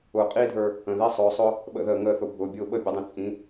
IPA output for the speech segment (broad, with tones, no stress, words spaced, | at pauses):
ʊː˨qʼiː˦dʱə˞˧ | ə̃˨ði˦sˤʊː˨˦sˤʊ˦ | ɓə̰˧ðəː˨ ŋəː˧θʊ˨ bʱʊː˨bʲʊː˧ ɓə˦˨bʲə˨˦dˤĩ˨ t͡sʼĩ˨˦